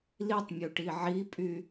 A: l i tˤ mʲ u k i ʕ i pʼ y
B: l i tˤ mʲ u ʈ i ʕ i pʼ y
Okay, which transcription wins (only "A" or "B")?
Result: B